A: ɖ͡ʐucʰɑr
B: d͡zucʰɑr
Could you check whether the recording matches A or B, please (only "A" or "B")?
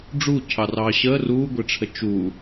A